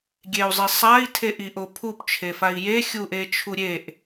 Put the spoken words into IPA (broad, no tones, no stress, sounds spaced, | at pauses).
ɡʲ e u̯ zˤ i sˤ a i̯ tʰ e ʔ i ʔ o pʰ u p t͡ʃʰ e f a i̯ j e xʲ u ʔ e t͡ʃʰ u ɾʲ e ʔ